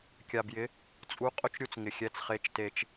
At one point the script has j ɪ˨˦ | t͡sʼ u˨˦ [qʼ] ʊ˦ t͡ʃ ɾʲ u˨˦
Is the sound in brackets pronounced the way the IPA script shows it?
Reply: yes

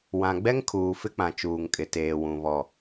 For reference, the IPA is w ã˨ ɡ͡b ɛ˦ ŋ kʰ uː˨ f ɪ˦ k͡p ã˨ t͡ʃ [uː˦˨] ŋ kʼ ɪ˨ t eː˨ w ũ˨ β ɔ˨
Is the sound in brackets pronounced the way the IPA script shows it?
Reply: no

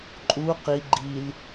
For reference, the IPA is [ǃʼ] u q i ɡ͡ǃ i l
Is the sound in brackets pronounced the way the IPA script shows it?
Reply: yes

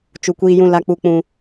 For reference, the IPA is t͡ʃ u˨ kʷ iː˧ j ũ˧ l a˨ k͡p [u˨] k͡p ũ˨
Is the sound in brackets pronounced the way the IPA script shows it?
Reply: yes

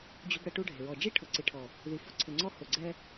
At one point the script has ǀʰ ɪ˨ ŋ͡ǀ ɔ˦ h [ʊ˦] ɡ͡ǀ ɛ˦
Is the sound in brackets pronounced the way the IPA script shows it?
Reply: no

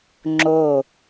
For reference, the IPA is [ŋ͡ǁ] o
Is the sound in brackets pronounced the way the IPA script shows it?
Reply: yes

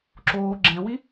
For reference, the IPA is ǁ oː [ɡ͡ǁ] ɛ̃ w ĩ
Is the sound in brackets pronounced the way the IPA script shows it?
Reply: yes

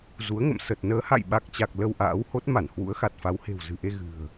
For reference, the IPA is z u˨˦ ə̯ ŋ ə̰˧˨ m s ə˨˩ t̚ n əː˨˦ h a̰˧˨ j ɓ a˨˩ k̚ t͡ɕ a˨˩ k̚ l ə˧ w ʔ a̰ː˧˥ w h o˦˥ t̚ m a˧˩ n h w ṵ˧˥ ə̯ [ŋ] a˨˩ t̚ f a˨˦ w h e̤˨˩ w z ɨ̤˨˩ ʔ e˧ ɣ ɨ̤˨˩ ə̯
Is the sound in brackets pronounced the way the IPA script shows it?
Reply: no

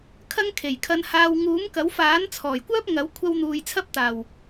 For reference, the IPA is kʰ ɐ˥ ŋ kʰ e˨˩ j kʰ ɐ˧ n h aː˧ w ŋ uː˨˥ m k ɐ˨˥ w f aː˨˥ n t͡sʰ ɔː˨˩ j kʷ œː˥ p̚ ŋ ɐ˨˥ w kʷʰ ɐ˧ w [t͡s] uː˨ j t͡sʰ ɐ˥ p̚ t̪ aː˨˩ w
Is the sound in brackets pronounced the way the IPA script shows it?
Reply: no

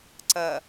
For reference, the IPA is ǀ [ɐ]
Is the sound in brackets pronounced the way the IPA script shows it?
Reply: yes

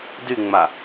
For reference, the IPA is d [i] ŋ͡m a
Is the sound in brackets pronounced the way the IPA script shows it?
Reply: no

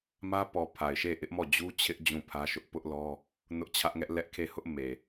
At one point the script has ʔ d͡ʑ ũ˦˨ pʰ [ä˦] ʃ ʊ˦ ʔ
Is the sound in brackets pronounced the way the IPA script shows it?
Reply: yes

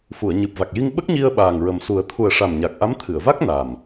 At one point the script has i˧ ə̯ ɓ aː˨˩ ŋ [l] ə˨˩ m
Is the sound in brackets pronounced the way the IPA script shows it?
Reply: no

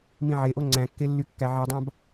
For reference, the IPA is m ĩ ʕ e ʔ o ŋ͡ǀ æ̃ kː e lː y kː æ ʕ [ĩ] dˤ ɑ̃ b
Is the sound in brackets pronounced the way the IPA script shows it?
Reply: no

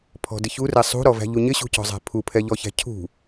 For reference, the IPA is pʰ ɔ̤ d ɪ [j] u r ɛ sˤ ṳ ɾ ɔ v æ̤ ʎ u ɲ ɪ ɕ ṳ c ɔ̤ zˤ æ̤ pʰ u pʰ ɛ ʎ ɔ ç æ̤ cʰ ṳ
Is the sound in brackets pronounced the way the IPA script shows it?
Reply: no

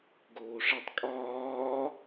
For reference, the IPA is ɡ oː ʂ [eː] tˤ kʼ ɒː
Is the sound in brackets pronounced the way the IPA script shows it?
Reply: no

